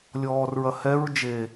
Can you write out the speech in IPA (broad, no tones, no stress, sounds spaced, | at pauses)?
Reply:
lʲ ɔː r ɹ ɐ h ɛ ɹ d͡ʒ e